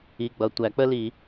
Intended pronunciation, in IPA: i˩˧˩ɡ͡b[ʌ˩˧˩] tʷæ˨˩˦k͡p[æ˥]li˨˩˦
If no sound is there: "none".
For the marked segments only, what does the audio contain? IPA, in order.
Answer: ʌ˩˧˩, ə˥

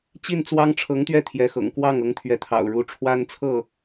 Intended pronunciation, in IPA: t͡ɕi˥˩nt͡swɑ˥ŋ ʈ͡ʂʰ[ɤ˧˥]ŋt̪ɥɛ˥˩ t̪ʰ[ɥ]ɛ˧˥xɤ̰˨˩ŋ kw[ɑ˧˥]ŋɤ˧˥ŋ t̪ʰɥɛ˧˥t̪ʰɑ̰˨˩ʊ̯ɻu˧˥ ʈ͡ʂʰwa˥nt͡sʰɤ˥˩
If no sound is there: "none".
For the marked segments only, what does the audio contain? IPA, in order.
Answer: ɤ˧˥, j, ɑ˥˩

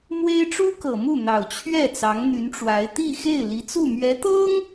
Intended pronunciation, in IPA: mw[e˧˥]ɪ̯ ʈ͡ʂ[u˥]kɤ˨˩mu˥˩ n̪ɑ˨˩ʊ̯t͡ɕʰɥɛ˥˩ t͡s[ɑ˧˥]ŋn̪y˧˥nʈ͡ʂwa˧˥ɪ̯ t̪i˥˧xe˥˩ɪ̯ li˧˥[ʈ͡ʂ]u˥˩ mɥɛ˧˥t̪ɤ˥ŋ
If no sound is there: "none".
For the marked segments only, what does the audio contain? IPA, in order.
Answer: e˥, u˥, ɑ˧˥, t͡s

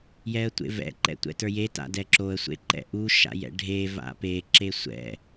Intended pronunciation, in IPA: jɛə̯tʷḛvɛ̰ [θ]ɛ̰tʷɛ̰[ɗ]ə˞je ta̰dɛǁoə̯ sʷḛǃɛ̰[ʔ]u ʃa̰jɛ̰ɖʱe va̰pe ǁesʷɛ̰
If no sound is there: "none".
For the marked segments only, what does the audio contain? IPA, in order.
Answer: ǃ, t, ʔ

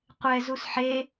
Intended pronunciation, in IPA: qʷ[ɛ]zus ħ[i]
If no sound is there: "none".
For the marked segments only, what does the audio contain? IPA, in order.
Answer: ɛ, e

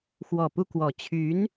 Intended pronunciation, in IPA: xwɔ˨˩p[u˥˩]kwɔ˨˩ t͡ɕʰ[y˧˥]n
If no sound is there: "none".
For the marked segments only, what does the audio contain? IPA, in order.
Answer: u˥˩, y˧˥

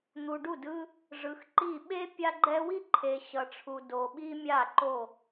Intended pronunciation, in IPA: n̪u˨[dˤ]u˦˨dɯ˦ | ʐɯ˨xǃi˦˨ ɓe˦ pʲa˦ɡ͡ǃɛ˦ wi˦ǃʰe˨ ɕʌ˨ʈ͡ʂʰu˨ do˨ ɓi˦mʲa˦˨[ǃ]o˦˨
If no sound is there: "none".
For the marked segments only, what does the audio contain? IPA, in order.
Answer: ɖ, ǃ

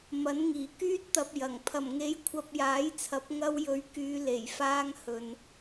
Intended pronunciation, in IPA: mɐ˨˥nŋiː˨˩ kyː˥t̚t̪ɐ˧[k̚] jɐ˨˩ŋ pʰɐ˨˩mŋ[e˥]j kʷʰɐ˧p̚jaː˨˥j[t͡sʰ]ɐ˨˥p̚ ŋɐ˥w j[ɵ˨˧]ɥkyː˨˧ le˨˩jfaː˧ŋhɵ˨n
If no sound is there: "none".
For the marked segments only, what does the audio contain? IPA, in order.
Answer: p̚, e˨˥, t͡sʰ, ɵ˨˧

